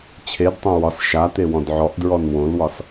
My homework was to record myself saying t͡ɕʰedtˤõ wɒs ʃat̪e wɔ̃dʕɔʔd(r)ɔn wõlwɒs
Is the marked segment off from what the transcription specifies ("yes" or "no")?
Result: yes